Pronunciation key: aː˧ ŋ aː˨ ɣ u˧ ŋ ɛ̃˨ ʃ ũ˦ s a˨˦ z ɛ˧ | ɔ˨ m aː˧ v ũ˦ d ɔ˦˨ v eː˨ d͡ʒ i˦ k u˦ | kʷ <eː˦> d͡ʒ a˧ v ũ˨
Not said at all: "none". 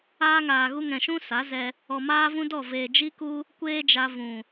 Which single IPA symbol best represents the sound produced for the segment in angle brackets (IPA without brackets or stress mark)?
eː˦